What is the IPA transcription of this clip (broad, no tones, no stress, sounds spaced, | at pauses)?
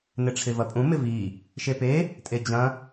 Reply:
n ɪ ʈ͡ʂʰ ɪ v ɐ pʼ ũ m ɪ v i | ʃ e p e | tʼ e d͡ʑ ɐ̃